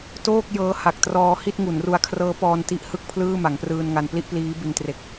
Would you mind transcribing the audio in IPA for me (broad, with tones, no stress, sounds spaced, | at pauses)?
t oː˥˩ k̚ j ɤː˦˥ h a˨˩ k̚ t r ɔː˧ h i˥˩ t̚ ŋ u˩˦ n r u˧ a̯ kʰ r ɤː˦˥ p ɔː˧ n t i˦˥ ʔ h ɯ˥˩ k̚ pʰ l ɯː˥˩ m a˩˦ ŋ p r ɯː˧ n ŋ a˧ n p l i˥˩ ʔ p l iː˦˥ b i˧ n t r e˨˩ k̚